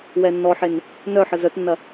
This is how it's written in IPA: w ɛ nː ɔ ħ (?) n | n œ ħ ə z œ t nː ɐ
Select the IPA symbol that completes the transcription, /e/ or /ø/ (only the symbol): e